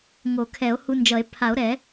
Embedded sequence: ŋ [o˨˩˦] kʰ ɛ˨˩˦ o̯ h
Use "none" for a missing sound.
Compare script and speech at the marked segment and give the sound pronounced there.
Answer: o˨˩˦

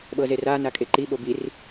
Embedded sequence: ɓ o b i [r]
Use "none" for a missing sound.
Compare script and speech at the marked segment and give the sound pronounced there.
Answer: r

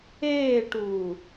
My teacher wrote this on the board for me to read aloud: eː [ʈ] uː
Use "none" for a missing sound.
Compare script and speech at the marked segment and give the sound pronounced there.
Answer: ʈ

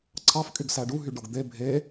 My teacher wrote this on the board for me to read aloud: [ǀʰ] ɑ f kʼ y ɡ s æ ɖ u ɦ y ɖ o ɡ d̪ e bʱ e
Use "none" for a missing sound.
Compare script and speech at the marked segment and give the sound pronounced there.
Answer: ǀʰ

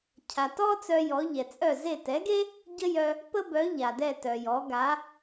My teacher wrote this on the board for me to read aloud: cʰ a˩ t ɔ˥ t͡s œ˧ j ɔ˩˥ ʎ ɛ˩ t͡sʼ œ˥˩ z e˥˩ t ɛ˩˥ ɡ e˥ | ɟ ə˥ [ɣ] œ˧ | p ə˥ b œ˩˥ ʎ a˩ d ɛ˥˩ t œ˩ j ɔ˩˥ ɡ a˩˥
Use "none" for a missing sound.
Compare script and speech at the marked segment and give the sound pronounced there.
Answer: j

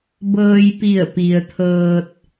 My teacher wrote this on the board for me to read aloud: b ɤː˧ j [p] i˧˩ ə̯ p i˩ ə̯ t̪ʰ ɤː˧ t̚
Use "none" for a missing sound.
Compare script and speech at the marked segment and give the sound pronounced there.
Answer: p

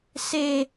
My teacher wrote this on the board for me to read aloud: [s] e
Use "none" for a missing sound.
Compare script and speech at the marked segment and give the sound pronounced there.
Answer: s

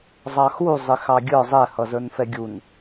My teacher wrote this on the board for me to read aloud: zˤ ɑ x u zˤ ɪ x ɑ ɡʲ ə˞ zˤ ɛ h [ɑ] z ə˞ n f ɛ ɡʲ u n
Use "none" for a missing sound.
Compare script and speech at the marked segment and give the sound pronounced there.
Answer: ʌ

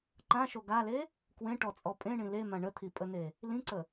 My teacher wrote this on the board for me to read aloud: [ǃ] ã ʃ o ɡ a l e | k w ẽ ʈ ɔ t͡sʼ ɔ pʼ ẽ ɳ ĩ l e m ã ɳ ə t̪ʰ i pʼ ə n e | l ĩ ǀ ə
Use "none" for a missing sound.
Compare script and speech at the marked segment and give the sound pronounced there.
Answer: ǃ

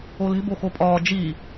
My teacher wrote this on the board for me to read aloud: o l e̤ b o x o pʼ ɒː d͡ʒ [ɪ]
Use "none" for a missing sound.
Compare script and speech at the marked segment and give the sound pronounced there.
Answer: i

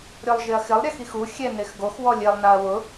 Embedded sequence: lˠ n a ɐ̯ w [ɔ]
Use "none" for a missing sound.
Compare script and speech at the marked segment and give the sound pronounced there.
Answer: ʊ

